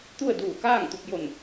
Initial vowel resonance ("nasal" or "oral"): oral